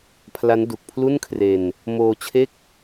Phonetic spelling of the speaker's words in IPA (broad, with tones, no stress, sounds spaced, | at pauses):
pʰ l a˦˥ n d u˨˩ k̚ pʰ l u˥˩ n kʰ r e˧ n | m oː˧ t͡ɕʰ e˥˩ k̚